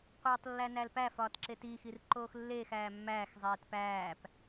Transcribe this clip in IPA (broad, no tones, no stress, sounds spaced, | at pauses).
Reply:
qʷ iː tˤ lː æ n æ l p æ f ɒː t ǁ e t iː x i r ǃ oː x lː eː x æː mː æː x zˤ eː t p æː p